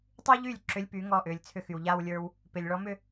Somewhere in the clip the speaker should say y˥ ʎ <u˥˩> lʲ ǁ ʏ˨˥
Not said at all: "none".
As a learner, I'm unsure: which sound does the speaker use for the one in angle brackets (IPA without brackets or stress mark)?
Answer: y˥˩